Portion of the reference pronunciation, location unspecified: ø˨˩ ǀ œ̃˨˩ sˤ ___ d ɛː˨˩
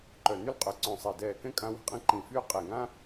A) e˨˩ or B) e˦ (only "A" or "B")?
A